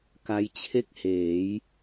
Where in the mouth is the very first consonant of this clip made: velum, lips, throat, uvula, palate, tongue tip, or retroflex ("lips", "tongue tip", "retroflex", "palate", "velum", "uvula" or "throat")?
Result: velum